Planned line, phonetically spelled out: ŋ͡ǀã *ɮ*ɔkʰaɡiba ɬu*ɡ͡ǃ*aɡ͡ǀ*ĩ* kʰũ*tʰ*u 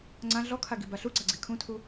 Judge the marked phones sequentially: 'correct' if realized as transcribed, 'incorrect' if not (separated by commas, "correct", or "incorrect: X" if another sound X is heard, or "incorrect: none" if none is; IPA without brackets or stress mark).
correct, incorrect: ɡ͡ǀ, incorrect: i, correct